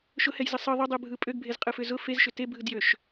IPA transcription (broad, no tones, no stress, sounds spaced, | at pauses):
ʃ ʊ h ɛ j z ə sˤ ɯ ðˤ ʏ dˤ ɯ bʱ ɯ pʼ ø ɡ bʱ e z qʼ ɯ f ʏ z ʊ f e z ʃ ʏ t e bʱ ɯ d j ø ʃ